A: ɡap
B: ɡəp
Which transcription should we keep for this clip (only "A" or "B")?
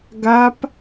A